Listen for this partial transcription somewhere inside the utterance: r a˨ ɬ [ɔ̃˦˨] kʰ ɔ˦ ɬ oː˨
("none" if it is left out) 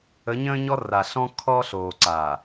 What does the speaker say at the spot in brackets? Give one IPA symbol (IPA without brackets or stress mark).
ɔ̃˦